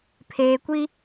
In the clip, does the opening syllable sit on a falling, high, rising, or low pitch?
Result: low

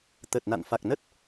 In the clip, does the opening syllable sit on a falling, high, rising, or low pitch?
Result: low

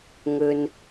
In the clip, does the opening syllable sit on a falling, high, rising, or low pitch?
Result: low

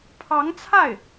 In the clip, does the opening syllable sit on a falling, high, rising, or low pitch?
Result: rising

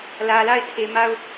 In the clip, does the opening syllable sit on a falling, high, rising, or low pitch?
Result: low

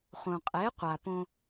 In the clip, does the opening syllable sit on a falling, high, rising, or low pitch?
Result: low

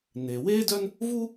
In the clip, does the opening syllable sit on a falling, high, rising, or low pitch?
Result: low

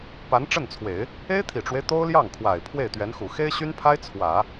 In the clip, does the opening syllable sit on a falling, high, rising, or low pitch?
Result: rising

